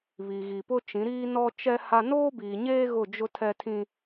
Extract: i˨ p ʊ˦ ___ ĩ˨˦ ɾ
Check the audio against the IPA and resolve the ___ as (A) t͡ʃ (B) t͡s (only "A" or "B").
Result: A